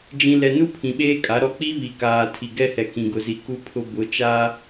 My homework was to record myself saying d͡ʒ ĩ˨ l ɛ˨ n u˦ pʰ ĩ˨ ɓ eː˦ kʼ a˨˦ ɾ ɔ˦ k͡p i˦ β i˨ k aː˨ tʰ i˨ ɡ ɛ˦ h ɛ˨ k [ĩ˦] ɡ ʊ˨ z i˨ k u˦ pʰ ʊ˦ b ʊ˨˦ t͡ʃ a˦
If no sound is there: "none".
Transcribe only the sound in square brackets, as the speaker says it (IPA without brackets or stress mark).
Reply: ĩ˨